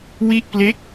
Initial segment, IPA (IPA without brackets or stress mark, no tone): w